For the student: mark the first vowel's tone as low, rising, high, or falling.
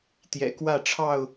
low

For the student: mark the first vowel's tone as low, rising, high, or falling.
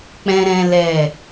high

